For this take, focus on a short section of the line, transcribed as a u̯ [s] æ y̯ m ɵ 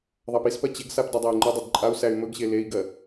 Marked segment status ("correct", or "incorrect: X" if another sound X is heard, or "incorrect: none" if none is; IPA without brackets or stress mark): correct